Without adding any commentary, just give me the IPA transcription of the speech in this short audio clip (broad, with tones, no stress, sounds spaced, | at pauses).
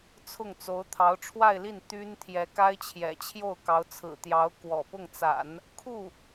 t͡sʰ ʊ˥˩ ŋ t͡s o˧˥ ʊ̯ t̪ʰ ɑ˧˥ ʊ̯ ʈ͡ʂʰ w a˥˧ ɪ̯ l i˥˩ n t̪ y˥ n t̪ʰ j ɛ˧˥ k a˥ ɪ̯ t͡ɕʰ j ɛ̰˨˩ t͡ɕʰ j o˥˩ ʊ̯ k ɑ˧˥ ʊ̯ t͡sʰ ɹ̩˨˩ t̪ j ɑ˧˥ ʊ̯ k w ɔ̰˨˩ p ʊ˥˩ ŋ t͡s a̰˨˩˦ n | kʰ u˥˩